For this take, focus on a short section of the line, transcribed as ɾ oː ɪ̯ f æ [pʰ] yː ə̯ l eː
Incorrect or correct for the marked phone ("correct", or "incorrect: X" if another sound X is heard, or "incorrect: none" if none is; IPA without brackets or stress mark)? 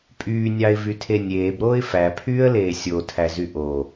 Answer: correct